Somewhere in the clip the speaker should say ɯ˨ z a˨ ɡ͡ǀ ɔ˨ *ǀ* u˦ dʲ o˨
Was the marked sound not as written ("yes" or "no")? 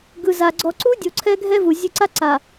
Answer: no